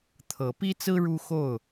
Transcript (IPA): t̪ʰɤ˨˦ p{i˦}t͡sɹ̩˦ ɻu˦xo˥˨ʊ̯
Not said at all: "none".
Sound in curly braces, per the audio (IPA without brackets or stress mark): i˦